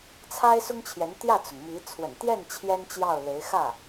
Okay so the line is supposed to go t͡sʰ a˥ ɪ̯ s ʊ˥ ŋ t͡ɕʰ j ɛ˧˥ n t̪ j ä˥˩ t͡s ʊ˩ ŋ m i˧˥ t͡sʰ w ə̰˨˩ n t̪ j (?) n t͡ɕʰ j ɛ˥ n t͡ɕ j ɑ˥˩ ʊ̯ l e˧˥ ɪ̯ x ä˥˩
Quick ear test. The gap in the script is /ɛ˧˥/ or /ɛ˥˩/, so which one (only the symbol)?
ɛ˥˩